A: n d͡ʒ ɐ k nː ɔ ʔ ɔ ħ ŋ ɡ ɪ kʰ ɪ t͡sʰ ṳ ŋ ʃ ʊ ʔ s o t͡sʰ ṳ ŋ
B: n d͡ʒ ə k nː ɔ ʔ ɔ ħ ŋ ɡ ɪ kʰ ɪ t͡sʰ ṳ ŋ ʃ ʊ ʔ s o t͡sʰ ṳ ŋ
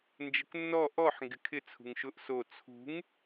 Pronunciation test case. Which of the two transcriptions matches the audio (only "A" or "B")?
B